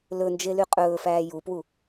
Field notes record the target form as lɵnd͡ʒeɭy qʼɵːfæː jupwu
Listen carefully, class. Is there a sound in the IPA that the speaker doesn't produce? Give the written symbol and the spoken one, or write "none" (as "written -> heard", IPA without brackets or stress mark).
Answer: ɭ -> l